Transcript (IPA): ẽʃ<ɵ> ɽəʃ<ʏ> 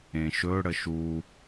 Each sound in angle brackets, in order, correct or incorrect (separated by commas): correct, incorrect